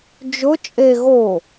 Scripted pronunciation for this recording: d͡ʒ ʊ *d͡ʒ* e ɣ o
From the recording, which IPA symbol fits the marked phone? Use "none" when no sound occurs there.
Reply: t͡ʃʼ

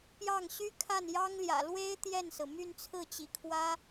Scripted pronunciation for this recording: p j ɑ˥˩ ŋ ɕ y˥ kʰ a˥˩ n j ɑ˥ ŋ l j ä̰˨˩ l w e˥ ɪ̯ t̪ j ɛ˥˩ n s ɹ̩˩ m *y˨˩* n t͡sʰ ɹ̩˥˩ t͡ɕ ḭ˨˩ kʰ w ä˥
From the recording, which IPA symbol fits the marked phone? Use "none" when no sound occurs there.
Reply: y˥˧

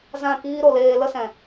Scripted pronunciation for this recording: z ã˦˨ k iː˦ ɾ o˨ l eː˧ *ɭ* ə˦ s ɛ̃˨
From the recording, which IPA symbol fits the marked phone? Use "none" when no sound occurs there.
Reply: l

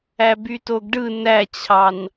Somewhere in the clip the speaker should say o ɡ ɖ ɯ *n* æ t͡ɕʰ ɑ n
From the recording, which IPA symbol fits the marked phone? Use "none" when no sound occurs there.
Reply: n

